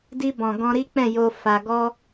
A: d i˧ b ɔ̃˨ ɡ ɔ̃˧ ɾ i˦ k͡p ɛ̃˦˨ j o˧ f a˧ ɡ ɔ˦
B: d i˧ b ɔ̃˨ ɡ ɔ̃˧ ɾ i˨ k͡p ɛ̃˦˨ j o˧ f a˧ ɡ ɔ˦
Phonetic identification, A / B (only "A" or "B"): A